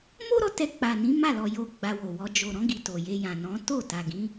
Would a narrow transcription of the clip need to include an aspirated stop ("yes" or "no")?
no